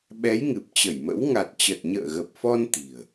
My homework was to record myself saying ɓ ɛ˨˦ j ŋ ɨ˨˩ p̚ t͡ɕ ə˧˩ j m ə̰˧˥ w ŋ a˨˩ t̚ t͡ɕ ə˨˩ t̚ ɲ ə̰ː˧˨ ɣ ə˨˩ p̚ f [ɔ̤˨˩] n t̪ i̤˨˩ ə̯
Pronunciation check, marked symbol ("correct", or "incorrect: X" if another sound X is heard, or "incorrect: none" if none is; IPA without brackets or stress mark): incorrect: ɔ˧